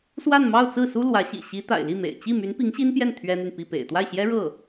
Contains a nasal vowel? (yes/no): no